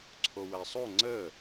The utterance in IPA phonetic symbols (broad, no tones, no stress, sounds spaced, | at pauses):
ǀʰ o w æ sˤ o ŋ͡ǀ ə